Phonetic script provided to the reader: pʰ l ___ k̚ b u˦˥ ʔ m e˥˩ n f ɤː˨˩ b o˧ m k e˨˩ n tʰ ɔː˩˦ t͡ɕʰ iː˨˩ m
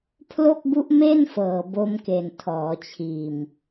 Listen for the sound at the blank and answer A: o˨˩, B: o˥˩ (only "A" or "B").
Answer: B